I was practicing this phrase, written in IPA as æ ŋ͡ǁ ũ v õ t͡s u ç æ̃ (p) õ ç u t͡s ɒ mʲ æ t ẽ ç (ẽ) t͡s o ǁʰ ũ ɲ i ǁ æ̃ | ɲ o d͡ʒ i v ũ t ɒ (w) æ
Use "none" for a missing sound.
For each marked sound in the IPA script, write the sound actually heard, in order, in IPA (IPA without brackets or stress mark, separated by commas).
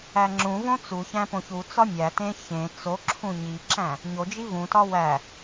p, ẽ, w